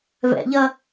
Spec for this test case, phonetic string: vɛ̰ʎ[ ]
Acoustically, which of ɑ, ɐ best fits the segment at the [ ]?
ɐ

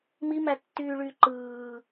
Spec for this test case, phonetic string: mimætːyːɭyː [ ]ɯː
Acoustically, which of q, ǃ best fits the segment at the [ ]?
ǃ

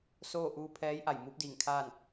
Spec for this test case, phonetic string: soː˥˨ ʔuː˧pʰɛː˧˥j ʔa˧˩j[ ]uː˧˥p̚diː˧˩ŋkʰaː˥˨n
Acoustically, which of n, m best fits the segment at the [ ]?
m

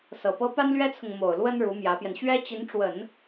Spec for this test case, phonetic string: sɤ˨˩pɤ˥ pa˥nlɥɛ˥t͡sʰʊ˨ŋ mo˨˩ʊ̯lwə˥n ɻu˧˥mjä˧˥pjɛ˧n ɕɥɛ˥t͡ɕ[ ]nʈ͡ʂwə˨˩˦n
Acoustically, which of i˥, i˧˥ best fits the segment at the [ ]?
i˧˥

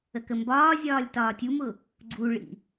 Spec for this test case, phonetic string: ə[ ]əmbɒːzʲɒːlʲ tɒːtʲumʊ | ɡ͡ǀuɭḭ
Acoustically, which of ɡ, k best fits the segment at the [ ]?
k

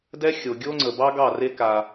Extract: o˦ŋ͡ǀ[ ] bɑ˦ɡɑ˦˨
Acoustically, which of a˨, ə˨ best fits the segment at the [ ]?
ə˨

